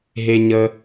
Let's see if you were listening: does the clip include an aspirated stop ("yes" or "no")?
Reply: no